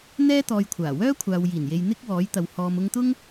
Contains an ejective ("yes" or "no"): no